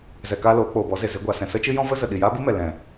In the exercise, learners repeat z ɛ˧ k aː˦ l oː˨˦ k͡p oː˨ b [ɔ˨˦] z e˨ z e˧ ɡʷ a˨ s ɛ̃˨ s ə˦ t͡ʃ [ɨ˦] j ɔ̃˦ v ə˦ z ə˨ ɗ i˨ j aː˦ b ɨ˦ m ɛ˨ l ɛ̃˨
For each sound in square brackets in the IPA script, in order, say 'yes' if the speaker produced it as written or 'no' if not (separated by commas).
yes, yes